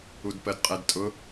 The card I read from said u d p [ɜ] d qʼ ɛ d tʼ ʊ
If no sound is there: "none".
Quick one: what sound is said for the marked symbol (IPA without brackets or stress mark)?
ɜ